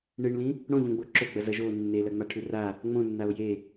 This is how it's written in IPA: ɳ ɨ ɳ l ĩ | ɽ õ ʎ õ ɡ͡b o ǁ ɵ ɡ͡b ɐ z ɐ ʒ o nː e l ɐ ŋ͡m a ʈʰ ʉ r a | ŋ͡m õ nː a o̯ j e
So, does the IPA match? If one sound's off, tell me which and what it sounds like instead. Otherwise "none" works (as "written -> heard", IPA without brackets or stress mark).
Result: none